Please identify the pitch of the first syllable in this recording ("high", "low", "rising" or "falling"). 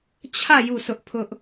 falling